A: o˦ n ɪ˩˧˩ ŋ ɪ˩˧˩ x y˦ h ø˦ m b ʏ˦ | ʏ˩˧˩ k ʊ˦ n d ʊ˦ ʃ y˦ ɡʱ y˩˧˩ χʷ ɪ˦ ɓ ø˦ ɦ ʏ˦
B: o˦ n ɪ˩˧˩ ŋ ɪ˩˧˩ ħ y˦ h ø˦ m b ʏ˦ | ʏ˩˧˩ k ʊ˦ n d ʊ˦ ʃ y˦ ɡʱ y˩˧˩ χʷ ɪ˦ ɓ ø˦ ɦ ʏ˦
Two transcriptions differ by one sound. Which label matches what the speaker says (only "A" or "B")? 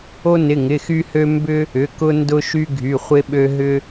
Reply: A